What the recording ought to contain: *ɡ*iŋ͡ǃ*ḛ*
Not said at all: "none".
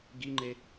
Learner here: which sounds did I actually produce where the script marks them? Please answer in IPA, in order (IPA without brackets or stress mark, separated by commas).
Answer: ɡ, e